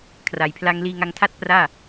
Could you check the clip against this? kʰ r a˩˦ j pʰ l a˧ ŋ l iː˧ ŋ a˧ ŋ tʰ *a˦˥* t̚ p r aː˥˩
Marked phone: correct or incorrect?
incorrect